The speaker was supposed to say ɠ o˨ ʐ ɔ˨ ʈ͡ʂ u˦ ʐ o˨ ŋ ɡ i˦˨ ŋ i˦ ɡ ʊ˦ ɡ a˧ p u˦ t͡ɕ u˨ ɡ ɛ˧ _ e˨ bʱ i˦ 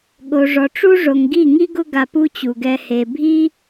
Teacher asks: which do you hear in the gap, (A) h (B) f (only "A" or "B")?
A